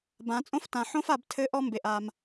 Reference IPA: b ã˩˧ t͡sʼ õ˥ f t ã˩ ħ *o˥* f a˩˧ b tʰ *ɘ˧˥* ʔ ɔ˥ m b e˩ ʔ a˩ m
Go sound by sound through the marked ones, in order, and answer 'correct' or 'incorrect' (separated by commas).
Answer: incorrect, correct